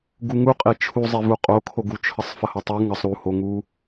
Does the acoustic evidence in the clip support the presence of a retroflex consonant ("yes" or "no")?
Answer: no